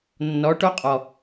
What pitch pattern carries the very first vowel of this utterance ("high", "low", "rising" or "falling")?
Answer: rising